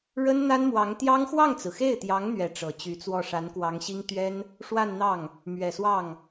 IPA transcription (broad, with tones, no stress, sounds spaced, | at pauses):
ɻ ə˥ n n̪ a˥ n m w ɑ˧˥ ŋ t̪ j ɑ˥ ŋ x w ɑ˥˩ ŋ t͡s ɹ̩˩ x e˥˩ ɪ̯ t̪ j ɑ˧˥ ŋ n̪ ɥ ɛ˧˥ ʈ͡ʂ ɤ˨˩ t͡ɕ y˧˥ t͡s w ɔ˥˩ ʂ a˧˥ n k w ɑ˧˥ ŋ ɕ i˥ ŋ t̪ ɥ ɛ˥ n | ʂ w a˥˧ n n̪ ɑ˥˩ ŋ | m ɥ ɛ˨˩ s w ɑ˥˩ ŋ